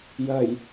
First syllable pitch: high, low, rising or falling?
low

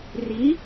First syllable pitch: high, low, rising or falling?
rising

